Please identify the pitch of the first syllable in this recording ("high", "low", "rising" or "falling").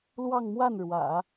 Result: falling